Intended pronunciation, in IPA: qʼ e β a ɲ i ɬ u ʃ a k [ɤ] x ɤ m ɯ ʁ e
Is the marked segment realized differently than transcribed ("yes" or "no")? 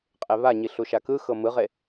yes